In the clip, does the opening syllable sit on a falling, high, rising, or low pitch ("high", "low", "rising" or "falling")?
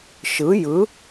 rising